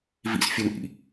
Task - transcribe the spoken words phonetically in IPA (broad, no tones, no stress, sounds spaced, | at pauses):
v ḭ s fʲ o n ʔ ḭ